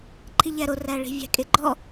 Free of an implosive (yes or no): yes